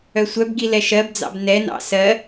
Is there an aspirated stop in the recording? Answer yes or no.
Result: no